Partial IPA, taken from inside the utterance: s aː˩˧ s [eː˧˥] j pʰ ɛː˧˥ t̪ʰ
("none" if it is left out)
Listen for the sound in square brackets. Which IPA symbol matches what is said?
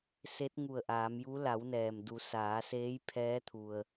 eː˧˥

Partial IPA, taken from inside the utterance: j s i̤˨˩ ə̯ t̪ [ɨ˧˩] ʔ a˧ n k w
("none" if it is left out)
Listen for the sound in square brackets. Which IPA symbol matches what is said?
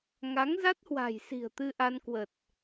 ɨ˧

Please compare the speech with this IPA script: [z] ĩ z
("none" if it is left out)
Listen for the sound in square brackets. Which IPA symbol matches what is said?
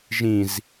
ʒ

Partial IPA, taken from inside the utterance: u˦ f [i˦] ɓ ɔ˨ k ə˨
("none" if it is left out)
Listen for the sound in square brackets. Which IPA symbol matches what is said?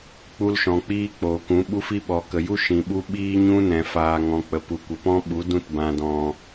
i˦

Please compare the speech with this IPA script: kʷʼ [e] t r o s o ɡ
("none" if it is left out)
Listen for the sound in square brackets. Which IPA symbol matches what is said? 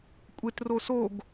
e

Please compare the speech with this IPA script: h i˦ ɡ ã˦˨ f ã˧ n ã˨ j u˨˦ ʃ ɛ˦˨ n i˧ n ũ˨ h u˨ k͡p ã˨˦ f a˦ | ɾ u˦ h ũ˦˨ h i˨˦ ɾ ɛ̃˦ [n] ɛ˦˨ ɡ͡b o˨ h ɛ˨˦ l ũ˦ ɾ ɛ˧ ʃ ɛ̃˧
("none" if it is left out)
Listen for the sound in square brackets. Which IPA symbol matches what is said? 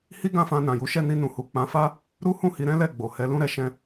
l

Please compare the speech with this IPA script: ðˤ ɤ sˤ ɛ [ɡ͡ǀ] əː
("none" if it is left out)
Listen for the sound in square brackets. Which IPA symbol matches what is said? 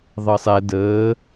d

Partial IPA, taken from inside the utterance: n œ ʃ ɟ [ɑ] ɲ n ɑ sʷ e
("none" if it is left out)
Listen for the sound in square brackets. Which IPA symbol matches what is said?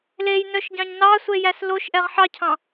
ɑ̃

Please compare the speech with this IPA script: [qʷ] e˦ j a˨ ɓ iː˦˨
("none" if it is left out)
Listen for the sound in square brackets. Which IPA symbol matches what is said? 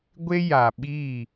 ɡʷ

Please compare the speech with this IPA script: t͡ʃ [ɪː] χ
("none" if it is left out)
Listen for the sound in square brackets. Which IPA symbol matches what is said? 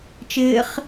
ɪː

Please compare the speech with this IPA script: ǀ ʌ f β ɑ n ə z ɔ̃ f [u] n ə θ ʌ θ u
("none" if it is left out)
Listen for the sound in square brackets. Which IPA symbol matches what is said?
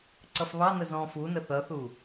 u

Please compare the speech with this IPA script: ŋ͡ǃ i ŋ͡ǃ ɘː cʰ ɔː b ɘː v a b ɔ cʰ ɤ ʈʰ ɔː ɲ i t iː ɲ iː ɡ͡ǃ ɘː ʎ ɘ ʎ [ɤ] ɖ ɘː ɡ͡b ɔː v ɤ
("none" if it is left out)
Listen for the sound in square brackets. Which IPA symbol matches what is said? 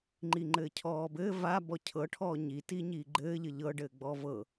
ɤ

